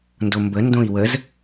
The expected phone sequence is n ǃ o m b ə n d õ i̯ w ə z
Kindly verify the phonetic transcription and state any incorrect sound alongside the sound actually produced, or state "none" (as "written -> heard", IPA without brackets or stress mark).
ǃ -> d